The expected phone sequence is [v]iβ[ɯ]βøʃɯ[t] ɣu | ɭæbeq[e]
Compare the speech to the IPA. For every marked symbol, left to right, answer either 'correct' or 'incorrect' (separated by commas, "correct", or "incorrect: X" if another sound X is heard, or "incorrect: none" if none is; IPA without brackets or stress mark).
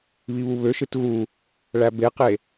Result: incorrect: β, incorrect: u, correct, correct